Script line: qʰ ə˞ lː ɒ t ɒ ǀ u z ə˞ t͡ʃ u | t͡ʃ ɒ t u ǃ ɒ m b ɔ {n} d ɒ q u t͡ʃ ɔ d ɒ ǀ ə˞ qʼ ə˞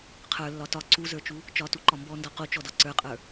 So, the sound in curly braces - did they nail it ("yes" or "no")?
yes